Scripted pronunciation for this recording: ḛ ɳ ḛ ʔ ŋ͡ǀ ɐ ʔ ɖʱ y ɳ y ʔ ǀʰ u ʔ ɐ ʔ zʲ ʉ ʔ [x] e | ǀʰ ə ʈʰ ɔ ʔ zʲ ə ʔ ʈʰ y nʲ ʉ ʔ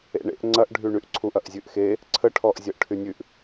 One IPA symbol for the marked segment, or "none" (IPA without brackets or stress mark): x